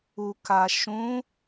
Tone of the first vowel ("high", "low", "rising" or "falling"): low